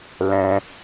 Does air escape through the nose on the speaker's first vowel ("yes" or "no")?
yes